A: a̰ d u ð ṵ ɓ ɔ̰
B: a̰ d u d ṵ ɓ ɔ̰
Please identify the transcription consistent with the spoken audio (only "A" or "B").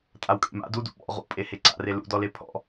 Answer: B